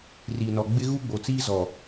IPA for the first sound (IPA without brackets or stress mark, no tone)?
r